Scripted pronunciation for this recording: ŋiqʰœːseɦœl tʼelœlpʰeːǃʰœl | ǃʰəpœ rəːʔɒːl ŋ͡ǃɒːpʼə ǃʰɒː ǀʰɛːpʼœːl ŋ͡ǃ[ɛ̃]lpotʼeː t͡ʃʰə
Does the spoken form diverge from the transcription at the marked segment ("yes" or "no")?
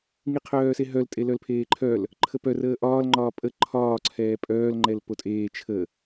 yes